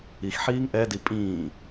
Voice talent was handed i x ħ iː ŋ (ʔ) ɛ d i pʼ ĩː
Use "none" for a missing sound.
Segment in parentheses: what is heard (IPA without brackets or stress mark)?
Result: ʔ